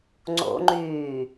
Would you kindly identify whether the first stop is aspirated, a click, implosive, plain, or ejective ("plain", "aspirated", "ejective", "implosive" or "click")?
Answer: click